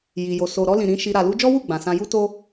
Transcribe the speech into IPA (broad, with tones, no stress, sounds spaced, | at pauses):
j i˨ j o˨ s o˨ ɾ ɔ˧ l ĩ˨ ɾ ĩ˨˦ ʃ i˧ ɾ a˨ l u˧ d͡ʒ ɔ˦ w u˦˨ ɡ͡b ã˨ s ã˧ j u˦ t o˦